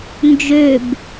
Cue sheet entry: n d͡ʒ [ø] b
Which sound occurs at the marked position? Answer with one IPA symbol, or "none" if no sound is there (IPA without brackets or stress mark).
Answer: ø